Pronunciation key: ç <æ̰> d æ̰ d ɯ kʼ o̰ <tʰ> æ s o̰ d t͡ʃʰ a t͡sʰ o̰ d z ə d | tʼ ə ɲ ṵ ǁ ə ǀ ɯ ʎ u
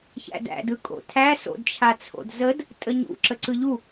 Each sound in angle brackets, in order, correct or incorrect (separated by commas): correct, correct